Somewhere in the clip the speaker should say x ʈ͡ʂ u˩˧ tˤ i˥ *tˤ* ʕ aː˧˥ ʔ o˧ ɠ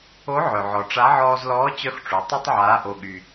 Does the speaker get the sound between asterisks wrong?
no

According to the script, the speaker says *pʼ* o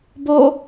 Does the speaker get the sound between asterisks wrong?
yes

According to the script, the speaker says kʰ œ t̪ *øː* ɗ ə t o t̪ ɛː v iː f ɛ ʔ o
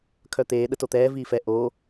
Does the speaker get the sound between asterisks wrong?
yes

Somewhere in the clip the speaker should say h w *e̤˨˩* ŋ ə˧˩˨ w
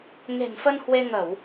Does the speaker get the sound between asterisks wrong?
yes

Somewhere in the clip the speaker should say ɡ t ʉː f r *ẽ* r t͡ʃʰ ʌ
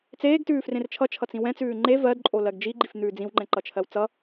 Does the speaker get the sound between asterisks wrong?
no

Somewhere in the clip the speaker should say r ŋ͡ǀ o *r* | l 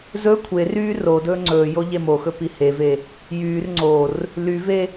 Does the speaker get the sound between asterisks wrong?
no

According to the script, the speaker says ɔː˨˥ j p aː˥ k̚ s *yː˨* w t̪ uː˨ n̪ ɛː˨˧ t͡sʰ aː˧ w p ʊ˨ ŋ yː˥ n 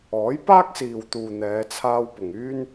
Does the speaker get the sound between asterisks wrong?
yes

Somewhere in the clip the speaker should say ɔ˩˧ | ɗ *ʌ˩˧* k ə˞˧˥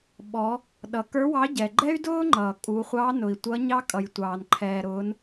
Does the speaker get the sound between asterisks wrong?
no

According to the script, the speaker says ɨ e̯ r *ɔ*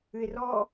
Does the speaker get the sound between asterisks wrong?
no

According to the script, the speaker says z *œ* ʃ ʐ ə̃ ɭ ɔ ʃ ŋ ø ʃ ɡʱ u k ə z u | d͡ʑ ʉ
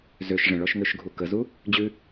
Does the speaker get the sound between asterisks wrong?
yes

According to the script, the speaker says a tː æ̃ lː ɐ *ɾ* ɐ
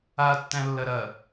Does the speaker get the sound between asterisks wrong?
no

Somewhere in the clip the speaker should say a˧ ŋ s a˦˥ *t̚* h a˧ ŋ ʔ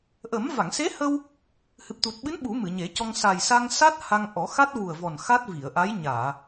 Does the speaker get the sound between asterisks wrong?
no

